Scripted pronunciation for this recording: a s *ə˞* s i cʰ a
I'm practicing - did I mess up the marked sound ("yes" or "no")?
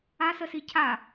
yes